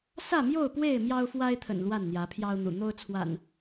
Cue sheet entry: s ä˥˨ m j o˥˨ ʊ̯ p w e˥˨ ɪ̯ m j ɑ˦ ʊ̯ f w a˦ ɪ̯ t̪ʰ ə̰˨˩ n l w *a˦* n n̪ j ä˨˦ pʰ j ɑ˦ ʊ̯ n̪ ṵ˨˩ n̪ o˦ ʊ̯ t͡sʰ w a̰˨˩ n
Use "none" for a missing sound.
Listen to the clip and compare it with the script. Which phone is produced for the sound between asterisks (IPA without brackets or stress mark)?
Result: a˥˨